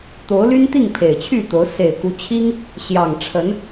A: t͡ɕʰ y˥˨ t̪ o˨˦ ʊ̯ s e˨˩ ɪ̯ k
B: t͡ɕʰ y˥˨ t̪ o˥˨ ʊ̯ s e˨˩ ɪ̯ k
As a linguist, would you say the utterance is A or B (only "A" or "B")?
A